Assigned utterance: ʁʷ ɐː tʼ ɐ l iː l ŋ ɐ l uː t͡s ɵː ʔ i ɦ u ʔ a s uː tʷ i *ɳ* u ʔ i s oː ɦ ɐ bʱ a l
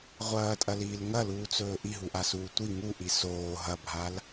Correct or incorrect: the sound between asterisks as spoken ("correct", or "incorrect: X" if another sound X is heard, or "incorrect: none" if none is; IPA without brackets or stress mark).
incorrect: ŋ